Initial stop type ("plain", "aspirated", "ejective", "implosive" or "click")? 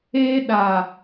implosive